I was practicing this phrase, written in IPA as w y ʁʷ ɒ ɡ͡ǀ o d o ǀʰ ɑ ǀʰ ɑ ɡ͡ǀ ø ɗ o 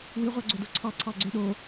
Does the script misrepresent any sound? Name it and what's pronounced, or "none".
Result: ɒ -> ɑ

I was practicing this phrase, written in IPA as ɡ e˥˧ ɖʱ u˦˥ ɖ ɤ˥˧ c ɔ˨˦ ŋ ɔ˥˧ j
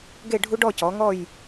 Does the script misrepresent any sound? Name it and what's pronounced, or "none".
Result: ɤ˥˧ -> ɔ˥˧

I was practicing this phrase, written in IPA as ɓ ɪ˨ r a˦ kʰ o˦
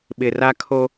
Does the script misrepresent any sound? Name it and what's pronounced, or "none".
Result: none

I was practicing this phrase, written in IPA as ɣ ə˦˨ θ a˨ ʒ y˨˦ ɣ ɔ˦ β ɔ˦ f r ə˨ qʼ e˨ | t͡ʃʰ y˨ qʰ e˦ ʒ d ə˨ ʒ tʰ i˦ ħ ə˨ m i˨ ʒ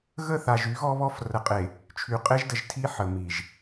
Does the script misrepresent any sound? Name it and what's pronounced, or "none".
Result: qʰ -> qʼ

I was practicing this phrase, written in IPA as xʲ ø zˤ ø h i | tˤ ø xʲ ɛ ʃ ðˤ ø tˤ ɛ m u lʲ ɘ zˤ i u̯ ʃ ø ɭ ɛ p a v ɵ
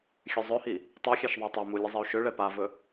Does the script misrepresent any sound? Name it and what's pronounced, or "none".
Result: none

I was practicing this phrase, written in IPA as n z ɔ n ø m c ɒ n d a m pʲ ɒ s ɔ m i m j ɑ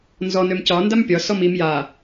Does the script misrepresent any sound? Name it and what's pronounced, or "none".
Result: ɑ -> a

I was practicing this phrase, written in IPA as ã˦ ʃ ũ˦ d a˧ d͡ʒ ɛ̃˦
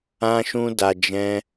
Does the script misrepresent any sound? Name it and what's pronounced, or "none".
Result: none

